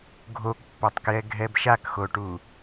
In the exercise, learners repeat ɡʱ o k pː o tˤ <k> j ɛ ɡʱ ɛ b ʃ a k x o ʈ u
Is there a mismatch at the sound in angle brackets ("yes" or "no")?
no